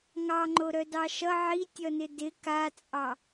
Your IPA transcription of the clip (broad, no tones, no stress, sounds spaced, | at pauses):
ŋ ɑ ŋ͡ǃ o ɾ œ d ɑ ʃ ʌ ʕ i tʲ ʌ n ɪ d ɪ k a t͡sʼ ɑ